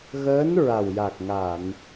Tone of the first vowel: rising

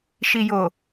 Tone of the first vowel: low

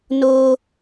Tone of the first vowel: low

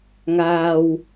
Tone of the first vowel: low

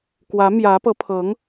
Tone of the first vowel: rising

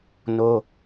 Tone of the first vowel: high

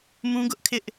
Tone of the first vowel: high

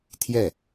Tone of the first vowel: falling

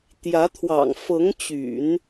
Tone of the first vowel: rising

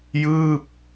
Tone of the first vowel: falling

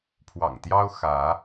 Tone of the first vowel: low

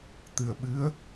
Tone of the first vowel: low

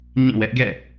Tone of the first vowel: falling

